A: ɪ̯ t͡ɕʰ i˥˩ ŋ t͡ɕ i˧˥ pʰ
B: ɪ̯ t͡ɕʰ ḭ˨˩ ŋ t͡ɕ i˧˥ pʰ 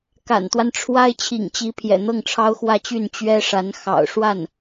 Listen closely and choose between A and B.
B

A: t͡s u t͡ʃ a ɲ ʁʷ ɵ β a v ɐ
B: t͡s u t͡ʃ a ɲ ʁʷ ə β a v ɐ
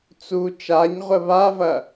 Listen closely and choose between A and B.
B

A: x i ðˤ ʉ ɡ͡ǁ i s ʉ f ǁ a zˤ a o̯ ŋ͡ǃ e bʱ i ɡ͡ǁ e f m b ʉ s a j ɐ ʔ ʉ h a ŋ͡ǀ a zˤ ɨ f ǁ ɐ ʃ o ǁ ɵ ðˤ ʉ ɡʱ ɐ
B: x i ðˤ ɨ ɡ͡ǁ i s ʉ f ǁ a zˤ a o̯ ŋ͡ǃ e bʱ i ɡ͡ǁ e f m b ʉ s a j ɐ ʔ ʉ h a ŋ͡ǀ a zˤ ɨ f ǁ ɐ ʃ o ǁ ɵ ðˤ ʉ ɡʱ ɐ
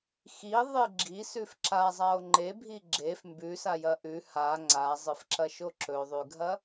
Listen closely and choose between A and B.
B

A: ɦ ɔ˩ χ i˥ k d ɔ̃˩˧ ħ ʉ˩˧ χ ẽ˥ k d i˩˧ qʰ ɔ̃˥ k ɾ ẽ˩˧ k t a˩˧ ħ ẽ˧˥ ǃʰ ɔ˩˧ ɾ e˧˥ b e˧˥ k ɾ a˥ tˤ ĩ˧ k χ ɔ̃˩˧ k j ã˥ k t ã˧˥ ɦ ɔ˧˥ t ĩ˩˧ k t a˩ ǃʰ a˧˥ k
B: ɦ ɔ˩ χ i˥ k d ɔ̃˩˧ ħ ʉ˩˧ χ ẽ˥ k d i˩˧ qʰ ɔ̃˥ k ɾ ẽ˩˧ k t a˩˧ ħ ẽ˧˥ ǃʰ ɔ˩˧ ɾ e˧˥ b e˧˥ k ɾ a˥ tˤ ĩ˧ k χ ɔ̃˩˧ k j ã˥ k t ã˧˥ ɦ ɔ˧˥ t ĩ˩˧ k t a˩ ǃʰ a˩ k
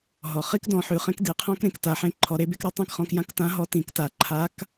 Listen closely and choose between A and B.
A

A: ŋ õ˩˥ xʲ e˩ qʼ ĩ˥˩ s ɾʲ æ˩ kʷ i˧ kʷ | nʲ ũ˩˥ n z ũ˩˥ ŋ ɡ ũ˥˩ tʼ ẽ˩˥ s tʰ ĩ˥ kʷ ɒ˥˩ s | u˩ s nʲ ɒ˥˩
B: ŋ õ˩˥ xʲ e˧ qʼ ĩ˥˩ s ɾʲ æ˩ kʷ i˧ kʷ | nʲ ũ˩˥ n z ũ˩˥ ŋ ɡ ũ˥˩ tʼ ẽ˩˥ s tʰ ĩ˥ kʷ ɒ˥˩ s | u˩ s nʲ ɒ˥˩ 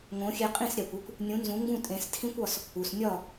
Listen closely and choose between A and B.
B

